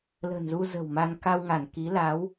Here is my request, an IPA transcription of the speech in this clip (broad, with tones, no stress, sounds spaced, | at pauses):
l ə̤˨˩ n z u˧ z ə̤˨˩ w m a˧ n k a˧ w ŋ a˧˩ n k i˨˦ l a˨˦ w